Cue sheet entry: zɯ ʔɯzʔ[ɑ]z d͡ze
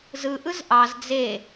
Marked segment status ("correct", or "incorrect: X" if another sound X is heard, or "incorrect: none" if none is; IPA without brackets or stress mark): correct